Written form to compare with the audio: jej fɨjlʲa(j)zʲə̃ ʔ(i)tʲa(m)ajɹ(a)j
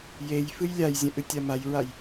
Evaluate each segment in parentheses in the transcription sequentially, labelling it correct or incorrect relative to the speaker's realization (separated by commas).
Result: correct, incorrect, correct, correct